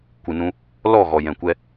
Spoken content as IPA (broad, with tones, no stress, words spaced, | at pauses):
kʷɨ˨nũ˧ | lɔ˦˨ ɣɔ˨jɛ̃˨kʷɛ˧